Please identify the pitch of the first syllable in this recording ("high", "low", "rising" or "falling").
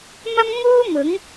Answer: high